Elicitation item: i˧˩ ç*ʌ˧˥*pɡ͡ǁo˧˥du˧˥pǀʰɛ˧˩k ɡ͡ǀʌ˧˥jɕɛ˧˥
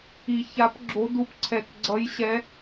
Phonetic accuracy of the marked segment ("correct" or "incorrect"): incorrect